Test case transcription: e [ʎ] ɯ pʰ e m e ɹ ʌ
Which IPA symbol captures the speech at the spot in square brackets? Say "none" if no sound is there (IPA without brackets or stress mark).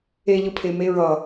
ʎ